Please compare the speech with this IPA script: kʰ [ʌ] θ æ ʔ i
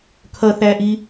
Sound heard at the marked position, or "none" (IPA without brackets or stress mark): ʌ